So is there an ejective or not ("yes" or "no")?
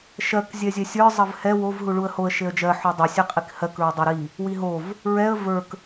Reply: yes